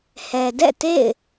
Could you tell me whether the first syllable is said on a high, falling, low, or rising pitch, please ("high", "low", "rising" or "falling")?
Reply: low